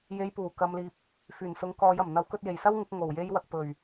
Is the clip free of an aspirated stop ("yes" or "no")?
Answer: yes